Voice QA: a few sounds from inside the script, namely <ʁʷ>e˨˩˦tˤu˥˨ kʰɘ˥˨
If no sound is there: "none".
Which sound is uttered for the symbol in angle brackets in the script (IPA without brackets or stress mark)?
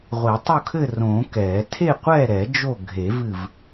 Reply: ʁʷ